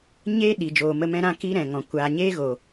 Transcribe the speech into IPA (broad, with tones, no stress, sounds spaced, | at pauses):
ɲ eː˦ ɗ iː˨ d͡ʒ oː˨ m ə˧ m ɛ̃˧ ɾ ã˦˨ k i˦ ɾ ɛ̃˨ ŋ ɔ̃˨ kʷ aː˨ ɲ eː˦ ɣ o˨